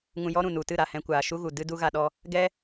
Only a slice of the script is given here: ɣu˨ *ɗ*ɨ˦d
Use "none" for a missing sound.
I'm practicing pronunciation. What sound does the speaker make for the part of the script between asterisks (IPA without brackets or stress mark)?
d